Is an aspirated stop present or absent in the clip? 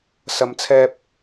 present